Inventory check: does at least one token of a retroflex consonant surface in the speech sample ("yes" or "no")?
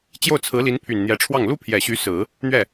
yes